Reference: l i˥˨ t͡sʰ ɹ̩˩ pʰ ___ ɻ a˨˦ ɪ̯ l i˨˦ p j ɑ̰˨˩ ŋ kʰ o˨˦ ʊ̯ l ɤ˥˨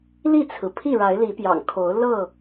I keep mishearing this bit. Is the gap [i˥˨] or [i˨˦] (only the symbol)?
i˥˨